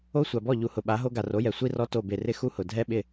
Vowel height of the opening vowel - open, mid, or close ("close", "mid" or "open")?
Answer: mid